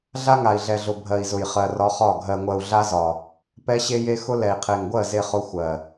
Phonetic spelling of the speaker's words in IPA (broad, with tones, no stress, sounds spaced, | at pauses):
ɮ a˦ ŋ a˨ i̯ ɮ ɛ˨ ɮ ʊ˨ bʱ ɜ˨ i̯ z ʊ˨ j χ ɜ˨ r ɒ˦ χ ɒ˦˨ ɡʱ ɜ˨ ŋʷ ɜ˨ u̯ ɮ a˦ z ɒ˨ | p ɛ˦ ɕ e˦ j e˦ x ʊ˦ l ɛ˨ i̯ qʰ e˨ ŋ ɡʷ ɜ˦˨ z e˦ χ ʊ˦ xʷ ɜ˨